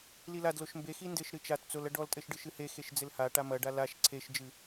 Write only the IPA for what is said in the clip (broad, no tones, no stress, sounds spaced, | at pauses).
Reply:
l i l a d l o ʃ m b e x i n d ɘ ʃ ɾ ɨ t͡ʃ a t t͡s o l ɐ ɖ ɔ l tʼ ɘ ʃ ɖ ɨ ʃ ɨ h e x e ʃ d͡z ɘ l h a ʈ a m ɐ ɖ a l a ʃ ǀʰ e ʃ d͡ʒ ɨ